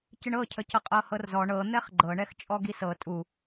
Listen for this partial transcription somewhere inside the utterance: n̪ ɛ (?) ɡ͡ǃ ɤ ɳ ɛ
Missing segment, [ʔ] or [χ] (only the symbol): χ